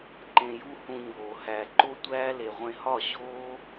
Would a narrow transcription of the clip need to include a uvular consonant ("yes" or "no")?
yes